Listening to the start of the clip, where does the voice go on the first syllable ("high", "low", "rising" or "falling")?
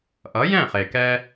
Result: rising